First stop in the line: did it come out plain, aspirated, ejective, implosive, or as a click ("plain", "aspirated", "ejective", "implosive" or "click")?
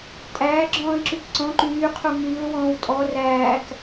ejective